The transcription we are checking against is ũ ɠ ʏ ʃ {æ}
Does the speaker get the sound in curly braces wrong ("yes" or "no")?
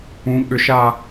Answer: yes